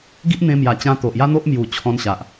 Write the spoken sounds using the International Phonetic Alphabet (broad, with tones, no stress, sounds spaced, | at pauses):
ɡ i˦ ʔ n̪ ẽ˧ m j a˨˩ t͡ɕ ã˧ t̪ o˨ ʔ j a˦ n̪ o˦ ʔ m j u˨˩ t͡ɕʰ ɔ̃˧ n ɕ a˨ ʔ